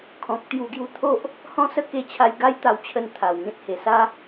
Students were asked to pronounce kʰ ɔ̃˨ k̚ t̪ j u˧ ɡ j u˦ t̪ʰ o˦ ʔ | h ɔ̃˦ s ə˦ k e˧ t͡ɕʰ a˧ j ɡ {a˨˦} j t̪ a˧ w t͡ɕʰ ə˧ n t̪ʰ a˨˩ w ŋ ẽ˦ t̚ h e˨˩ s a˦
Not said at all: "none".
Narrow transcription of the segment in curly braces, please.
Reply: a˦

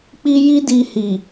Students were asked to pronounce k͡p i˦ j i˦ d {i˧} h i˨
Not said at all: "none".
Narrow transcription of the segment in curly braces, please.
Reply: i˧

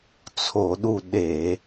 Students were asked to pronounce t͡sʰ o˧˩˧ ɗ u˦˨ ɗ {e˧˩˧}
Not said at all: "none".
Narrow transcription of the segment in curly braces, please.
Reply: e˧˩˧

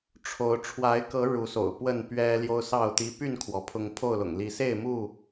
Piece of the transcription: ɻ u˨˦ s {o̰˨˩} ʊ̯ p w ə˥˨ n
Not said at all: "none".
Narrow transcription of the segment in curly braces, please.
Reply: o̰˨˩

